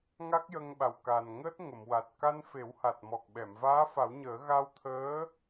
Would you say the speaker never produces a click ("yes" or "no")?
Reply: yes